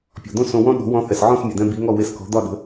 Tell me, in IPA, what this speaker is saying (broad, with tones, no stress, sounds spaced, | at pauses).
pʲ ɔ̤˩ d̪ õ˥ s õ˧ w ɔ̃˥ ɗ ɔ̤˩˥ w ɔ̃˧ θ ɛ˩ s ʕ ɔ̃˥˩ s mʲ ə˩ d̪ ɛ̃˧ b i˩˥ ŋ ɔ˥˩ w e˧ s k ɔ̤˩˥ d̪ ɒ˥˩ ɗ ə̤˩˥